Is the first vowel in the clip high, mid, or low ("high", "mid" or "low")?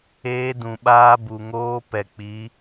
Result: mid